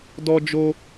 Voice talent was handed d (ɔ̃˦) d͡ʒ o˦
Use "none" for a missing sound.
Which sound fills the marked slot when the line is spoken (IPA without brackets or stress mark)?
ɔ˦